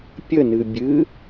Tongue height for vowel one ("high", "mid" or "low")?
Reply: mid